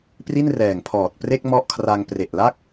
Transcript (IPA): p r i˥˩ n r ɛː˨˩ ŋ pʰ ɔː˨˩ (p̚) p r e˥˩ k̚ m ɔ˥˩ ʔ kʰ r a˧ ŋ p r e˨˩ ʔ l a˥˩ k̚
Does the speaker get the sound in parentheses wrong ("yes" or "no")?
yes